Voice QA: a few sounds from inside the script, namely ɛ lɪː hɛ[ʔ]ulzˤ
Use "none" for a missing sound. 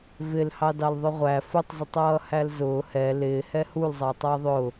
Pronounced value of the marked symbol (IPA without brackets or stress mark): h